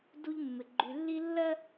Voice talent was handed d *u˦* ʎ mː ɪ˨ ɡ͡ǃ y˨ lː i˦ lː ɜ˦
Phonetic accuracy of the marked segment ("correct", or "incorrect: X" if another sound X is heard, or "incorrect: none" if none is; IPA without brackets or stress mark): correct